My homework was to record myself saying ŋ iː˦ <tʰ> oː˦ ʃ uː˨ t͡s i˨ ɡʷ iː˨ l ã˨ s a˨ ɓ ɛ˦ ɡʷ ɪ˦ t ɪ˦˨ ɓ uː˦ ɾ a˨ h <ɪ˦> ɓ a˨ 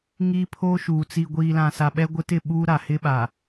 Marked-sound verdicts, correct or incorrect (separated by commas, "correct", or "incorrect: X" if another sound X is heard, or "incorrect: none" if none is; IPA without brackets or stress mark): incorrect: pʰ, correct